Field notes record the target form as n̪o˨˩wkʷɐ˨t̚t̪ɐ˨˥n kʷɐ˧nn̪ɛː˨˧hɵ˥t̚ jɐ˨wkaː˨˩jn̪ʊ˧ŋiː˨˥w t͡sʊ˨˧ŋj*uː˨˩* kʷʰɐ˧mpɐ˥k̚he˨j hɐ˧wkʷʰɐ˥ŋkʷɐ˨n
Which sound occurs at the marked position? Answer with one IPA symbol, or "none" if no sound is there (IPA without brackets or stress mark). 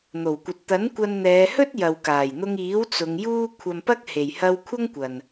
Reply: uː˥